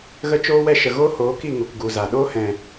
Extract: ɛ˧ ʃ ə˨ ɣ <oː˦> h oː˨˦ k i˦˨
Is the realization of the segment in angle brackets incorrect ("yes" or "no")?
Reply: no